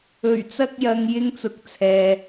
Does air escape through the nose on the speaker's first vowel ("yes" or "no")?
no